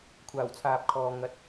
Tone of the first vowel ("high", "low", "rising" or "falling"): low